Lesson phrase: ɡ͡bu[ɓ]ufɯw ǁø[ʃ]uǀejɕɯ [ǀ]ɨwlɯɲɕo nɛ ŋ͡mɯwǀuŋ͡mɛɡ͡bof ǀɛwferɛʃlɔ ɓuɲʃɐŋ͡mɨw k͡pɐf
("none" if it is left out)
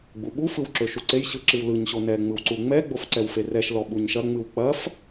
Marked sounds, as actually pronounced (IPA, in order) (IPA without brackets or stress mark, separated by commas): ɓ, ʃ, ǁ